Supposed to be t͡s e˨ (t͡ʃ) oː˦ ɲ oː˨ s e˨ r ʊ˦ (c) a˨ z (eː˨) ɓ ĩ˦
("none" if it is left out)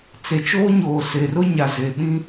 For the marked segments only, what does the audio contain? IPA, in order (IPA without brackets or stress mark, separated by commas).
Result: t͡ʃ, ɲ, e˨